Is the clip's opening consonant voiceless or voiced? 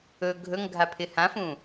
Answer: voiced